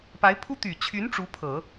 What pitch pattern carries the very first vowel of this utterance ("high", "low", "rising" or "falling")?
rising